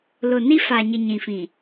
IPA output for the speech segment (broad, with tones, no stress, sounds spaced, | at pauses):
l ʊ˨ n i˦ f a˨ ɲ i˨ ɲ ĩ˨ f ĩ˨